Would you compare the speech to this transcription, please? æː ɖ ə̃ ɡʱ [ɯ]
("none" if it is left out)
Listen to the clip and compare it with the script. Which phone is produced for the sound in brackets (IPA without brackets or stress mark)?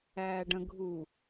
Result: u